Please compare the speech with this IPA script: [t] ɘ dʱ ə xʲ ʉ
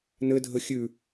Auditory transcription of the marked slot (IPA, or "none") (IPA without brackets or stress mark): n